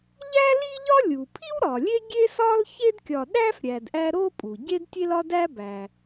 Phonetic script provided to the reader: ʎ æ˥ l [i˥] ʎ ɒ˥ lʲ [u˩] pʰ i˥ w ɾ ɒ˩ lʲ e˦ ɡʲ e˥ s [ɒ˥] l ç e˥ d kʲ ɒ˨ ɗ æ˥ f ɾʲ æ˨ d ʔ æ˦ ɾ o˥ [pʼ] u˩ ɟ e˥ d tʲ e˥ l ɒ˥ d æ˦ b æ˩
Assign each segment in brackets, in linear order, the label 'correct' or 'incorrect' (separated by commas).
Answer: correct, correct, correct, correct